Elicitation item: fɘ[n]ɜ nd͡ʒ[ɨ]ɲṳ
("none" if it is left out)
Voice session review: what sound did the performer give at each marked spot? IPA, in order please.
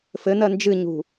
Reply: n, ɨ

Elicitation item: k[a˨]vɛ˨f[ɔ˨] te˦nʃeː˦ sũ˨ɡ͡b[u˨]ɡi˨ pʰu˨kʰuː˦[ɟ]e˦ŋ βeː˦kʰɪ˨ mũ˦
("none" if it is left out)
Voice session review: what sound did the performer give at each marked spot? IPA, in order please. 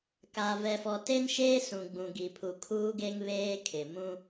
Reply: a˨, ɔ˨, ũ˨, ɡ

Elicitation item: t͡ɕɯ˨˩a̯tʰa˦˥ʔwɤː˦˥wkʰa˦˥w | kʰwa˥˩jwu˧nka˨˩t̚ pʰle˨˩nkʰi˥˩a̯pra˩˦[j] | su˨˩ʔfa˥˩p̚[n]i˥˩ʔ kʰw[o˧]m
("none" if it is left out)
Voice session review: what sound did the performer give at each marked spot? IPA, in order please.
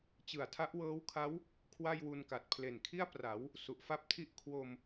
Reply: w, tʰ, o˧

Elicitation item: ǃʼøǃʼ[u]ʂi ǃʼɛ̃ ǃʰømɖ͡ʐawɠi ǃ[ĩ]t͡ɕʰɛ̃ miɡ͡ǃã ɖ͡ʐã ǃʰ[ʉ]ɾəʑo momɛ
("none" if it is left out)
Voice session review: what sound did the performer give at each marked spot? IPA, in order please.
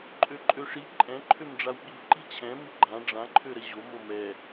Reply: ø, i, ø

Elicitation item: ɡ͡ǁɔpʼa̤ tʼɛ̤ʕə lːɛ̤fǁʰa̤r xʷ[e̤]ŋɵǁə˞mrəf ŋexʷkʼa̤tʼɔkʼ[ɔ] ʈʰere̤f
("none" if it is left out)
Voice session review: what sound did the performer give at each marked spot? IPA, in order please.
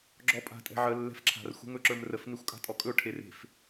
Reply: ɛ̤, ɵ

